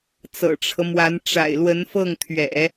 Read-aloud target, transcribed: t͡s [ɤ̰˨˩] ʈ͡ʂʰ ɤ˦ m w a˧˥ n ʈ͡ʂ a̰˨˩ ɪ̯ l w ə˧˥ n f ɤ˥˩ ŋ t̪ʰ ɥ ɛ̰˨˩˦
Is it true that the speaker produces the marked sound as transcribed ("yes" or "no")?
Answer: yes